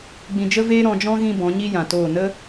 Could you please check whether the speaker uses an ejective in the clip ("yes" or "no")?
no